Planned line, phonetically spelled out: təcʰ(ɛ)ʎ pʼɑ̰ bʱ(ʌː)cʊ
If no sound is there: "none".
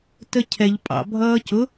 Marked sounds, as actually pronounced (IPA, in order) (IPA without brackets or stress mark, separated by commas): ɛ, ʌː